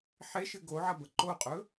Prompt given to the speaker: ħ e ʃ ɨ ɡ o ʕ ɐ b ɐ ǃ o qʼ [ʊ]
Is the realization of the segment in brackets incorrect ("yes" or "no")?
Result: yes